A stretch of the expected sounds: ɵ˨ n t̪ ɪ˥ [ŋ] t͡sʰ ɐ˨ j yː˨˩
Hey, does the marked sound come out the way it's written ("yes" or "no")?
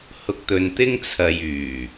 yes